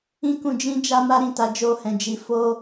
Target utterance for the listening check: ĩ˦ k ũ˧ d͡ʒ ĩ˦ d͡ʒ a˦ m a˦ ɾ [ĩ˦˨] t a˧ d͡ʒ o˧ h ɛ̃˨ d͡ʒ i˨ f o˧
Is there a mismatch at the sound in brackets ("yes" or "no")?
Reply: no